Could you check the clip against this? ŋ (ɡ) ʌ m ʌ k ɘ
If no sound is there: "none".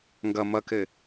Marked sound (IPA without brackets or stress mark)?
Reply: ɡ